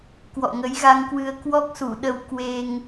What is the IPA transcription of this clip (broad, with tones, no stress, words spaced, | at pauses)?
kwɔ̰˧˨ŋə˨˦jɣa˧ŋkwɨ˧ə̯ kwɔ˦˥k̚su˧˩ɗə˧w kwe˧ŋ